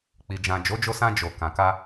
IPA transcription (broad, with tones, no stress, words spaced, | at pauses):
k͡pi˨d͡ʒã˨ d͡ʒo˨˦d͡ʒo˧sã˧ d͡ʒo˨kã˨ ka˧